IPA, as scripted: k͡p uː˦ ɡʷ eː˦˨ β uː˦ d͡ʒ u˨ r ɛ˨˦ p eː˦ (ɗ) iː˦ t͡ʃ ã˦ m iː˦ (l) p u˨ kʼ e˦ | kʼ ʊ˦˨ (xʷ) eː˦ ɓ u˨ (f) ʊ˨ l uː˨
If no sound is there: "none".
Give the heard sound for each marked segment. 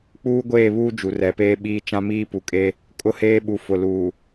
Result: ɓ, none, h, f

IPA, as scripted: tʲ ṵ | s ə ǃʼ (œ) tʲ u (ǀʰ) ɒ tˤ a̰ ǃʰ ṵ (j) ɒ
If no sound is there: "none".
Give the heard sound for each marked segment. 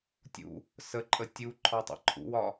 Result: ə, ǃʰ, w

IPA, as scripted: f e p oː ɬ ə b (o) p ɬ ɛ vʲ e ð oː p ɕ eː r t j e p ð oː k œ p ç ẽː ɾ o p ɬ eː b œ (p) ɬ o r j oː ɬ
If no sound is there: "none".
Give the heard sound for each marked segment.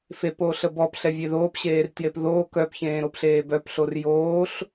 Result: ɔ, p

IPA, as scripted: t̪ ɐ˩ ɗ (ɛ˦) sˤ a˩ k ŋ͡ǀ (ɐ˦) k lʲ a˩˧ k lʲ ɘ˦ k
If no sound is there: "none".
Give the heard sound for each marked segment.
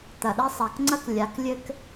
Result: ɛ˦, ɐ˦

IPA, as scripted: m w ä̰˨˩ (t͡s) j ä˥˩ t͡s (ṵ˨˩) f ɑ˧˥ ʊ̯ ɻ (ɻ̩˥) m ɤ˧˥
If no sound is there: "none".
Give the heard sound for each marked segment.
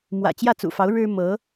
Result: t͡ɕ, ṵ˨˩, ɻ̩˥

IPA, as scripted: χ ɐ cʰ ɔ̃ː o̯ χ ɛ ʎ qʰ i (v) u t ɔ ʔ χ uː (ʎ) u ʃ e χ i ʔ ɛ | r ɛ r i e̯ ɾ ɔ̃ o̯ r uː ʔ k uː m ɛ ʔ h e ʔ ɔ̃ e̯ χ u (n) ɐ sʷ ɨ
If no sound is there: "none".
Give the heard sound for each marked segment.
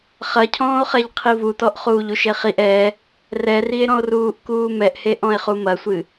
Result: v, ʎ, m

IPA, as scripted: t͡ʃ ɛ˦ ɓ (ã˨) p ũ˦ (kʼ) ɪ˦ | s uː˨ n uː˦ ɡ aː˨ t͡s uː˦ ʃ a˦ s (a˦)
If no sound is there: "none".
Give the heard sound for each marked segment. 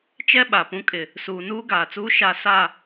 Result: a˨, kʼ, a˦˨

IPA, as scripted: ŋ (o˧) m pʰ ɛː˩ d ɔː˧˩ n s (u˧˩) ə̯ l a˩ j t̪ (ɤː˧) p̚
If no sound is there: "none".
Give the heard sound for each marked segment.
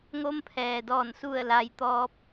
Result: o˧, u˧˩, ɔː˧

